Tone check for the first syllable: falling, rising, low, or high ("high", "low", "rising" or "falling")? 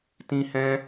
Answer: high